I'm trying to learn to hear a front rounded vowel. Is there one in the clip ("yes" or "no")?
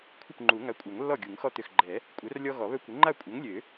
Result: yes